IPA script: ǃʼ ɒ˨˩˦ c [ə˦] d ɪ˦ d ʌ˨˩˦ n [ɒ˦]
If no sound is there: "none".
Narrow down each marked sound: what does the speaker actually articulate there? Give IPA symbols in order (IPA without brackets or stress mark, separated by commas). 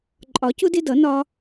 ʊ˦, ɒ˦